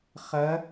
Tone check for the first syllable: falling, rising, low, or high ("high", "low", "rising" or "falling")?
rising